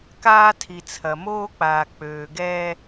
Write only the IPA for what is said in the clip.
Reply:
kaː˦ tʰi˨t͡sʰɐ˨moː˦k͡paː˨ k͡pøː˨ɡɛː˦

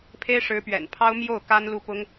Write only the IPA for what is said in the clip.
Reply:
pʰe˥ɪ̯ʂɻ̩˧˥pɥɛ̰˨˩n pʰɑ˥ʊ̯ mjo˥˩ʊ̯ ka˥nlu˥˩pʊ˥ŋ

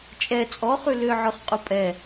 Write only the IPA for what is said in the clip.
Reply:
t͡ʃʼɛ t͡sʼɔχʉ lʏʕʊχqʼu pʼɛ

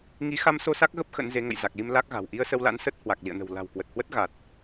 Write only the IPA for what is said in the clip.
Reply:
ŋi˨˦xa˧mso˧ sa˦˥k̚ɣə˦˥p̚ xə̰˧˥nze˨˦ ŋə̰˧˨jza˨˩k̚li˧m la˦˥k̚ɣa̤˨˩w ʔi˧ə̯sə˧w la̰˧˥nsə˦˥t̚hwa˨˩k̚ lḭ˧˨ə̯nə̤˨˩w la̤˨˩wkwə˨˩t̚hwə˦˥t̚ ɣa˨˩t̚

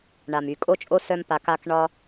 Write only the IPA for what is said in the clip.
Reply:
ɳa˨my˨kʼo˦t͡ʃʼo˦ sœ˦mpa˧ka˦k ɳɒ˦

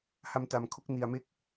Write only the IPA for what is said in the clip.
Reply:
ha˧mta˨˩m kʰo˥˩k̚ni˨˩a̯me˦˥k̚

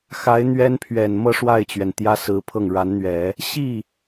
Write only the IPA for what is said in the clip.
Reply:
xa˧˥ɪ̯n̪ɥɛ˥npʰɥɛ˨˩n mɤ˥˧ ʂwa˥˩ɪ̯t͡ɕɥɛ˩n t̪jä˥sɹ̩˧˥pʰɤ˥˩ŋ ɻa˧˥nn̪ɥɛ˨˩˦ | ɕi˥˩

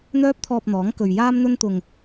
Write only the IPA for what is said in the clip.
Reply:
n̪œː˥p̚t̪ʰɔː˧p̚n̪ɔː˨˥ŋ kɵ˨ɥjaː˥mn̪ɵ˥nt̪ʊ˧ŋ

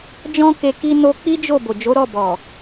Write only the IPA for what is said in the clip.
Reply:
d͡ʒɔ̃˦ke˧ ki˦no˦ k͡pi˦d͡ʒo˦˨ bo˨d͡ʒo˨˦ ɾɔ˦˨bɔ˨

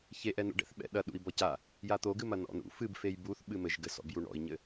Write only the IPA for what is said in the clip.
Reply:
çeʔɛnṵɖɛ̰θ ɓɛ̰ɗɐ ɗṵi̯bɔca | jat̪oɡɨmɐ nɔ̰nṵ fɨbfej buθ ɓɨmɘʒɡɘsɔ̰b juɳɔ̰i̯ɲɘ

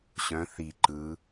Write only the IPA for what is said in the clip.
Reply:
ɕœ̃ θi ǃɯ

